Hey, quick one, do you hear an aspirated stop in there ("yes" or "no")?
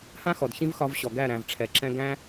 yes